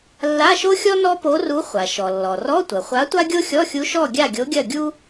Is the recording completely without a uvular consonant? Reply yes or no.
no